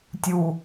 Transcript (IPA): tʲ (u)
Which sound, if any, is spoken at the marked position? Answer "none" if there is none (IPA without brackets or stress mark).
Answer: u